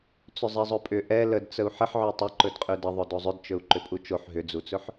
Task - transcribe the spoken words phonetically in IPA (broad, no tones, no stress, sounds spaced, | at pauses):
t͡s ʏ zˤ ɛ zˤ ɵ pʼ ʏ ʔ ɛ l ə d t͡s ə u̯ ħ ə ħ ʕ ø tˤ ə ǃ ɵ d qʼ ø d ə ðˤ ɵ d o zˤ ʏ d t͡ʃ ɵ u̯ ǃ ʏ pʼ u t͡ʃ o ħ ɦ ʏ d͡z u t͡s ɵ ħ